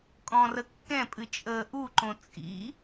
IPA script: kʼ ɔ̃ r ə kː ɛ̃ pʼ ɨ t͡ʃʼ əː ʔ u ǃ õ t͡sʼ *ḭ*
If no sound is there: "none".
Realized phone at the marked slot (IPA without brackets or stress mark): ḭ